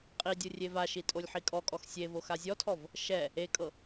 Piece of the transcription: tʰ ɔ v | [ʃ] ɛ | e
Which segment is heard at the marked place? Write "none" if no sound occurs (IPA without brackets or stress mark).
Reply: ʃ